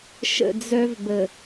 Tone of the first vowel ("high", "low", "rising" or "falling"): low